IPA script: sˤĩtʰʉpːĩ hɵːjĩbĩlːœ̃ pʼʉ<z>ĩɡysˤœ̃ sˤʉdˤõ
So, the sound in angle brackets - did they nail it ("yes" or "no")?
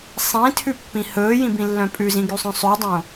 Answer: yes